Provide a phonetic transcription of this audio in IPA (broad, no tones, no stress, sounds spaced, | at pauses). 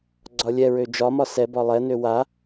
ɡ͡ǀ ɒ lʲ ɛ ɹ ø d͡ʒ ɒ m ɒ s ɛ b ɒ lˠ ɛ n ø w a